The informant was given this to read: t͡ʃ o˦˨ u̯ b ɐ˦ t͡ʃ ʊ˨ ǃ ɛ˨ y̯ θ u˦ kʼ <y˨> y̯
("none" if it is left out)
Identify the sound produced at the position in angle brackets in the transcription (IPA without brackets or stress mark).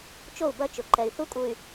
u˨